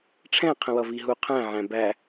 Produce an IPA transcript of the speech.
ʈ͡ʂʰ ɛ̃ qʰ ə̃ w ʌ v i ɦ u qʰ æ̃ ʕ æ̃ b æ

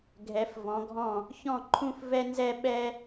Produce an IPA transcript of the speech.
ɡʱ ɛ˩˥ f v ɔ̃˩˥ ɡʱ ɔ̃˥˩ | ç ɔ̃˥˩ ǃʰ ũ˥˩ f v ɛ˥ n z ɛ˥ ɓ ɛ˥

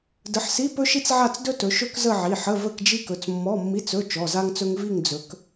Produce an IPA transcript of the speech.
d ə˨˦ ħ s i˧˥˧ p ɵ˥ ʃ i˥ t͡s ʕ a˥˧ t͡s d ɵ˥ t ɵ˨˦ ʃ ɵ˥ k z ə˥˧ ʕ i˩˧˩ ħ ə˧˥˧ v ə˥˧ k d͡ʒ i˥ k ɵ˨˦ t͡s mː ɔ˧˥˧ mː i˧˥˧ t͡s ɵ˧˥˧ t͡ʃ ɔ˩˧˩ z a˥ ŋ t͡s ɵ˥ ŋ v i˥˧ ŋ d͡z ɵ˨˦ k

